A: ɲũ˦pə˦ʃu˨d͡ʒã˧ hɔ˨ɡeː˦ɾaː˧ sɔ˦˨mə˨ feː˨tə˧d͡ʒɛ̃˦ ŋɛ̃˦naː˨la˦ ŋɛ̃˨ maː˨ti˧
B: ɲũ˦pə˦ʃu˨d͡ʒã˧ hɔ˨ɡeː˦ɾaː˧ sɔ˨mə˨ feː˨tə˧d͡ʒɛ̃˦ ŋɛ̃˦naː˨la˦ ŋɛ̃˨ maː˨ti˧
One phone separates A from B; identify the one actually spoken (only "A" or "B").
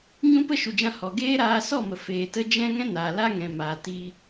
A